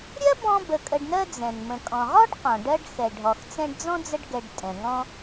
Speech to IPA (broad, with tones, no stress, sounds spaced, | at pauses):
ɾʲ ɜ˥ b ɔ̃˦ b ə˨ kʼ ə˨ ɖ n ɜ˦ d͡z ɛ̃˩ n m ə̃˩ kʼ ɔ̃˩ ʁ ɔ˥ ɖ q ɔ̃˩ ɖ ɜ˦ ɖ x ɛ˩ ɖʱ ɔ˩ x t͡s ɛ̃˦ ɖ d͡z ɔ̃˥ d͡z ə˦ ɖ ɡ ɛ˨ ɖ tʼ ɛ̃˩ ŋ ɔ̃˦